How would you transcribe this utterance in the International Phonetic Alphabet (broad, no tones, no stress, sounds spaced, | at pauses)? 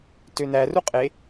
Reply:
t ø n æ r u qʼ e